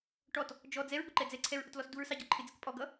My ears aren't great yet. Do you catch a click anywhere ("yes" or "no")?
yes